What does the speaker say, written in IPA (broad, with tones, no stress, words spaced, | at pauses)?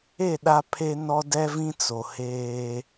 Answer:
e˦˨ɗa˦pʰe˦nɔ˦ dɛ˦vĩ˦ t͡so˨ heː˦